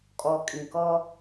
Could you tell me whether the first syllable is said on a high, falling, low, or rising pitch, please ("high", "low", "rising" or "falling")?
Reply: low